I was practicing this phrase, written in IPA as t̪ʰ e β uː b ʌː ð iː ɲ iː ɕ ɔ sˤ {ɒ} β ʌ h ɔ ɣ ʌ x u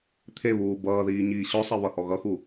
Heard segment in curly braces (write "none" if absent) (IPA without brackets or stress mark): ʌ